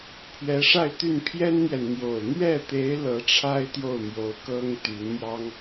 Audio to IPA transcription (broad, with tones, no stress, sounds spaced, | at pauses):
pʰ ɥ ɛ˧˥ ʂ a˥˧ ɪ̯ t̪ y˥˩ n pʰ j ɛ˥ n n̪ j ɛ˨ n n̪ j o˨˩ ʊ̯ n̪ ɥ ɛ˥˩ t̪ e˧˥ ɪ̯ l ɤ˧˥ ʈ͡ʂʰ a˥ ɪ̯ t̪ j o˥˩ ʊ̯ m j o˧˥ ʊ̯ k ɤ˥ ŋ t̪ y˧˥ n m j ɑ˥ ŋ